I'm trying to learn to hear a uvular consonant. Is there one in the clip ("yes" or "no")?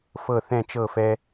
no